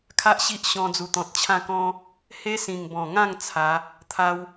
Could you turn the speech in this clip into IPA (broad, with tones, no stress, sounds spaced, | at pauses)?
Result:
kʰ a˦ ʔ ɕ i˦ ʔ ɕ ɔ̃˧ d͡z u˨˩ t̪ ɔ̃˨ t̚ t͡ɕʰ ã˥˧ k ɔ̃˦ | h e˦ s ĩ˨˩ ŋ b ɔ̃˨˩ ŋ ã˥˧ ŋ t͡sʰ a˨˦ | t̪ʰ a˦ w